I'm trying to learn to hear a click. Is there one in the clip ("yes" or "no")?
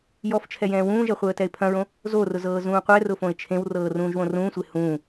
no